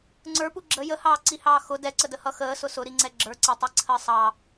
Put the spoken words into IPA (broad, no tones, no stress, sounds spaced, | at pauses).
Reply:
ŋ͡ǀ ə˞ p u ɡ͡ǁ ə j ə h ɑː ǀ i h ɑː x ʊ d ɛ ǀ ə d ə h ʌ x əː s ʊ s ʊ ɾ i ŋ͡ǀ ɛ ɡ͡ǁ ə˞ ǀ æ tˤ i ǀʰ əː sˤ ɑ